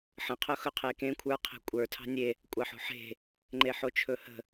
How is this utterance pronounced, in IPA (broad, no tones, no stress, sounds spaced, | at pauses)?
ħ ə̃ qʰ ʊ x ɵ qʰ e k ẽ kʷʰ ə˞ qʰ e̤ kʷʼ ə˞ tʰ ɑ̤ nʲ e | kʷʼ ɑ ħ o̤ ħ e̤ | ŋ͡ǃ e ħ o t͡ʃʰ ɵ h ə̤